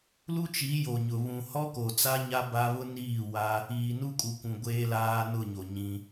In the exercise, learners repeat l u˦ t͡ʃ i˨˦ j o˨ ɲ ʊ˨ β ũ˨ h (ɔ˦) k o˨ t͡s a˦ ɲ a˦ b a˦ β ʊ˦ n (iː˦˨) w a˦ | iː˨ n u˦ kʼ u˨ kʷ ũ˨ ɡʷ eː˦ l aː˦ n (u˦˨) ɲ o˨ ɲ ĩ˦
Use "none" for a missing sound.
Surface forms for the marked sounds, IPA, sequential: ɔ˦, iː˦˨, ʊ˦˨

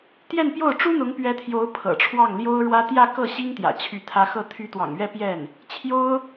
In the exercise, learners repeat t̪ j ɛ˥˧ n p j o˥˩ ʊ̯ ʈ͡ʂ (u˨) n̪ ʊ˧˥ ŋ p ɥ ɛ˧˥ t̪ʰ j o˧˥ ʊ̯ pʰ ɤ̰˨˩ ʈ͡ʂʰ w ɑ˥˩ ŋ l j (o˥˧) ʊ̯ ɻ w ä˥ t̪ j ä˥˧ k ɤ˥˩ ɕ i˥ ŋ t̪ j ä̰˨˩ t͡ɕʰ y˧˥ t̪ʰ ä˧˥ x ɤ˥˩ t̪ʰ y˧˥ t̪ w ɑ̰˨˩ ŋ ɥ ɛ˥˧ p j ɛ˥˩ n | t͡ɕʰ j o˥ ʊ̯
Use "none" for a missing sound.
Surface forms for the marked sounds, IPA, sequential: u˥, o˥

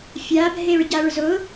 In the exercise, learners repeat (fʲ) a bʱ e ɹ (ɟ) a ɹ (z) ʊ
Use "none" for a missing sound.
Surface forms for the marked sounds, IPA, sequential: fʲ, ɟ, z

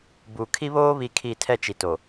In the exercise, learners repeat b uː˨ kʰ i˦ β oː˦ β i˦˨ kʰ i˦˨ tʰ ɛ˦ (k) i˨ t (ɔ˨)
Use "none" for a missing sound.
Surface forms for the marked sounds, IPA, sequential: t͡ʃ, o˨

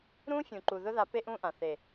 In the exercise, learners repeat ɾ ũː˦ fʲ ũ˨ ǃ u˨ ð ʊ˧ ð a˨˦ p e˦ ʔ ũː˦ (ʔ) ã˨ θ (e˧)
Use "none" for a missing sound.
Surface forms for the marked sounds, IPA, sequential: ʔ, e˨

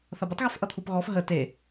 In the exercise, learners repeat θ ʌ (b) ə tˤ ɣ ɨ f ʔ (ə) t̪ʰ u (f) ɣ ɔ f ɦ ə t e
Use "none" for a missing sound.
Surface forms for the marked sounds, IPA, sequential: b, ʌ, p

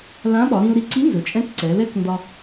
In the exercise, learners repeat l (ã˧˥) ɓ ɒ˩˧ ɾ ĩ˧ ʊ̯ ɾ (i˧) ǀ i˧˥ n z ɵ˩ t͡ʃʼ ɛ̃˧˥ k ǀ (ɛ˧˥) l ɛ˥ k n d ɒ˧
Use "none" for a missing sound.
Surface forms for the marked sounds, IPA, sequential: ã˧˥, i˧, ɛ˩˧

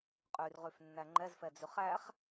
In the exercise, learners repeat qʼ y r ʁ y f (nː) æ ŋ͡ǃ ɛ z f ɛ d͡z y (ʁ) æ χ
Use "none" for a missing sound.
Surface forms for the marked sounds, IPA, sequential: nː, χ

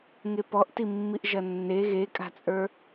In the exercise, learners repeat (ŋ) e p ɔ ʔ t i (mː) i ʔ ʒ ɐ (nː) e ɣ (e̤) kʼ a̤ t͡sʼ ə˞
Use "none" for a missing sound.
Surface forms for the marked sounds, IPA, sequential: ŋ, mː, nː, e

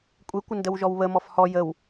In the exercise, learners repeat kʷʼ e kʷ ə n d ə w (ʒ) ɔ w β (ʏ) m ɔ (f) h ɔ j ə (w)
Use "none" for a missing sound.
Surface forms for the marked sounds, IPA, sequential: ʒ, ə, f, w

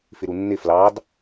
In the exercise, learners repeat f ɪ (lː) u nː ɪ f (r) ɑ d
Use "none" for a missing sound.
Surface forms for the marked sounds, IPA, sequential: ɾ, l

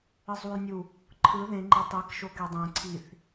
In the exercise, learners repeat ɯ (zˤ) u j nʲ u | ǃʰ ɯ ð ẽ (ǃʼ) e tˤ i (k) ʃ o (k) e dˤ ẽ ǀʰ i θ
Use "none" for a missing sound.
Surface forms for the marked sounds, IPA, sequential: zˤ, ŋ͡ǃ, k, k

